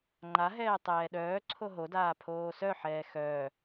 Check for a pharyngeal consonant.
present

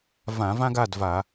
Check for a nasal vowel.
present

